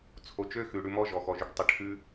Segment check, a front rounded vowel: present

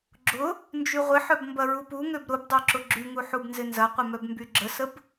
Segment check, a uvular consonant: present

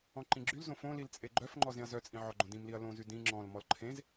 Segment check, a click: present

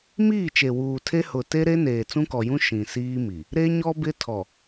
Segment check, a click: absent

